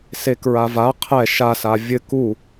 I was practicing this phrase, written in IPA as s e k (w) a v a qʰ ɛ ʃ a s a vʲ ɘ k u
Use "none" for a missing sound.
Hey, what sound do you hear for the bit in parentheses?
ɹ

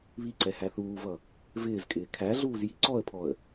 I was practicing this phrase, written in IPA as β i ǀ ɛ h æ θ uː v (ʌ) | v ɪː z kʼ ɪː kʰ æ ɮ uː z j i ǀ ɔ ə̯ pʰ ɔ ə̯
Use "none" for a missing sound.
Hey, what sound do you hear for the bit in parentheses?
ʌ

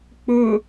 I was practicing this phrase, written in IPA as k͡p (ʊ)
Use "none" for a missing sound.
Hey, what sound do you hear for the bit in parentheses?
ʊ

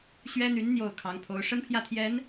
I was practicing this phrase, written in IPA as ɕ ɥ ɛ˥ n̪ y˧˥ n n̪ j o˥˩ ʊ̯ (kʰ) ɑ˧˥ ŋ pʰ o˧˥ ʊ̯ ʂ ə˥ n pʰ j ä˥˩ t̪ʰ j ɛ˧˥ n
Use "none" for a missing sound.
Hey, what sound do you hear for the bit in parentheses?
kʰ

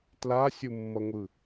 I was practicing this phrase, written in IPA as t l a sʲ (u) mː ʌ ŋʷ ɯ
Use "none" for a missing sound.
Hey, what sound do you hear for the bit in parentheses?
u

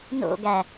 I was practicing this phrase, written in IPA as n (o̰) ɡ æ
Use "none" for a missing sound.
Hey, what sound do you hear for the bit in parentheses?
o̰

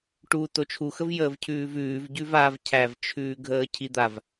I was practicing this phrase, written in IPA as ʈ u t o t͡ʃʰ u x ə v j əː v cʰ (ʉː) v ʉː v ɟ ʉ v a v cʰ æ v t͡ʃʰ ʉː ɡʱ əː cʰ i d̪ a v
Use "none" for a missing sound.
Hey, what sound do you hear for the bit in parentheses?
ʉː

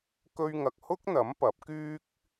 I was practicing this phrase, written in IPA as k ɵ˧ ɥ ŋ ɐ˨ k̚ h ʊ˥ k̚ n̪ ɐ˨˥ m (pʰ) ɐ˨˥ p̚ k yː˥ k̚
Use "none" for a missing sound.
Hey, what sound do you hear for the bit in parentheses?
p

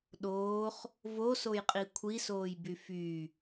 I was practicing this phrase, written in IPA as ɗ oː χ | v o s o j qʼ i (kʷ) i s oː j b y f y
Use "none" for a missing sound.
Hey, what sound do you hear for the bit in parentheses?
kʷʰ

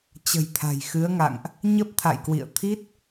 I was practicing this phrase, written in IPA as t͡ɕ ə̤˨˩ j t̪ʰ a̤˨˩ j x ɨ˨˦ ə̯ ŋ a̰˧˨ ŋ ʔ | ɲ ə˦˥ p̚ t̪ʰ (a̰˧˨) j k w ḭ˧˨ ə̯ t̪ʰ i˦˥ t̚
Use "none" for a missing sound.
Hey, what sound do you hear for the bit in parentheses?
a̰˧˨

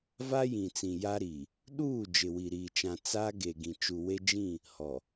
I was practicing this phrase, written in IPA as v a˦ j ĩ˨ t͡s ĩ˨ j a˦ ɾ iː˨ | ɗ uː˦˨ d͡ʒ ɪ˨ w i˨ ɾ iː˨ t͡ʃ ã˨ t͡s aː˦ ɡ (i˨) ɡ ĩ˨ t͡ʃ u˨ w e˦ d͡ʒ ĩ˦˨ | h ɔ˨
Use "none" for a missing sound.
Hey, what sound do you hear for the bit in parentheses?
e˨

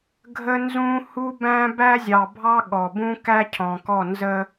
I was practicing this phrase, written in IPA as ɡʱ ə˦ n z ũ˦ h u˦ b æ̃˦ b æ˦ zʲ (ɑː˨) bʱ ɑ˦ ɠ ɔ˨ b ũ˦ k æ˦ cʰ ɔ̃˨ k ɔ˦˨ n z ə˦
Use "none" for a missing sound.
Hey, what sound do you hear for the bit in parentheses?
ɑ˨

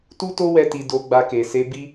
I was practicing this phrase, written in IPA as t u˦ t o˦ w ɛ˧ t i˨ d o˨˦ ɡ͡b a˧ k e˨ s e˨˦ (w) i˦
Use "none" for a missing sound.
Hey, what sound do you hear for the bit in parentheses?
b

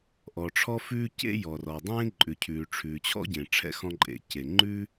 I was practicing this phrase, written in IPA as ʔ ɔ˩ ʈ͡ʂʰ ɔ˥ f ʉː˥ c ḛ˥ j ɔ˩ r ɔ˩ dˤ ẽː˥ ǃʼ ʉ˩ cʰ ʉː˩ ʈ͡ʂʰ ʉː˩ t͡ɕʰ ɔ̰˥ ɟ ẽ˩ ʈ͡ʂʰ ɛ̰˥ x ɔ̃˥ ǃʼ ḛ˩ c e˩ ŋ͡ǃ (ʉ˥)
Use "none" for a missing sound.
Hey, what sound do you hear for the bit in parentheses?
ʉ˥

